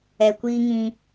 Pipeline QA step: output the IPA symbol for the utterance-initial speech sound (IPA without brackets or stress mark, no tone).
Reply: ɛ